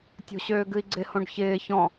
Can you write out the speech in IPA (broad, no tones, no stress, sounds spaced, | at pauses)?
tʲ o̤ ɕ øː ɡ ɨ i̯ ɡ͡ǀ ɪ h õ ɖ ç ɪː ç ɔ̃